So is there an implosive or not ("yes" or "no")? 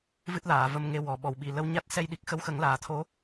yes